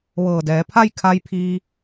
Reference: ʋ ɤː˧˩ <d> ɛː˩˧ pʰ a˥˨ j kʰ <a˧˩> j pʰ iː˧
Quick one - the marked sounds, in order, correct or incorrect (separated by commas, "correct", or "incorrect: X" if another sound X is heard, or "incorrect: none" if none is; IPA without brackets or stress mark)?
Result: correct, incorrect: a˧